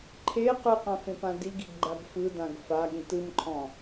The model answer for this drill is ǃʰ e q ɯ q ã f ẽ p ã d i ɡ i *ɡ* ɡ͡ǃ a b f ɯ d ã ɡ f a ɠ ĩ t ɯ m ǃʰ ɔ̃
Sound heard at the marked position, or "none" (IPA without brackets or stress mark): ɡ